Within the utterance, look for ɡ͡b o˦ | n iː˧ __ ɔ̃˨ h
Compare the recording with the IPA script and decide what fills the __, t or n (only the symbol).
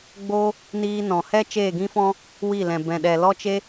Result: n